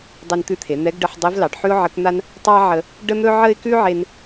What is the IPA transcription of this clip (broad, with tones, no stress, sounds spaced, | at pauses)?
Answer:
dˤ e˧ n t̪ ʉ˧˥ t̪ʰ e˩˧ n̪ ɛ˧˥ ɡ ɖ ə˧ ħ dˤ e˧˥ v l ɑ˩˧ ɖ ħ ʉ˥ ʊ̯ ʕ ə˧˥ k n̪ a˥ n | tˤ ɑ˥ ʕ ə˧ | ɖ ə˥ n̪ ɵ˥ ʕ ə˥ ɪ̯ k ʉ˥ ʕ e˧ n